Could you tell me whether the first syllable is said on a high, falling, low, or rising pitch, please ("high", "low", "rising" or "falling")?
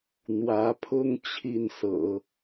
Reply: rising